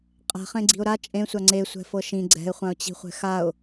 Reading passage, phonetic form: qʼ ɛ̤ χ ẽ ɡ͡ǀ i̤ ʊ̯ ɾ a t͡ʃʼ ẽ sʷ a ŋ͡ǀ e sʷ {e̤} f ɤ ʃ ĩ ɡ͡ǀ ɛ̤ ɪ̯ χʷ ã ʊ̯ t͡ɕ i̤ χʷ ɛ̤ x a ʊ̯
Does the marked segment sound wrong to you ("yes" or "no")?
yes